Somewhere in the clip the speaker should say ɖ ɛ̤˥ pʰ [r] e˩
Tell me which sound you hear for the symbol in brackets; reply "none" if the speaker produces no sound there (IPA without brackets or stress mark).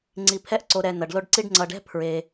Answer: ɹ